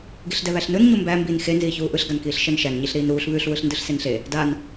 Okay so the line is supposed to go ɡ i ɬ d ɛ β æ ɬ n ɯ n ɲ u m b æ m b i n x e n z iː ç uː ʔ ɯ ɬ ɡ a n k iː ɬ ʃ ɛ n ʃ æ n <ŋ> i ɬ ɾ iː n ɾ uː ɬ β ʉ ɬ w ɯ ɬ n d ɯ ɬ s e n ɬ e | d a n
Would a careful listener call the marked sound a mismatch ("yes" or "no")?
yes